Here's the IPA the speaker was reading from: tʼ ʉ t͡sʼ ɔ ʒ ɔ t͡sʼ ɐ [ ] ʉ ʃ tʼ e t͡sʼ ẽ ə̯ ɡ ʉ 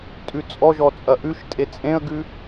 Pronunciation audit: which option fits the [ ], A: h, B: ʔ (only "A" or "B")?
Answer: B